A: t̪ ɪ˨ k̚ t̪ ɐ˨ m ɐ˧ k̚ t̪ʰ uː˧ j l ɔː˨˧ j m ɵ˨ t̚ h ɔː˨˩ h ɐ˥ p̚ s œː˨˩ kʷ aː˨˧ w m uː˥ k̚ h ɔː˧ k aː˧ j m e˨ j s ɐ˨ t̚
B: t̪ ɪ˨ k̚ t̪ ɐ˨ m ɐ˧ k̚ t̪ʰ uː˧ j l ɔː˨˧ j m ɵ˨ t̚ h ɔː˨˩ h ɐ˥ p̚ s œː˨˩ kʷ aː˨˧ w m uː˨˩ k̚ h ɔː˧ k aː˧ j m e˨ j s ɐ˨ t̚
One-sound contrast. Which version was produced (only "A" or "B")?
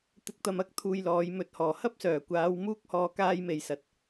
A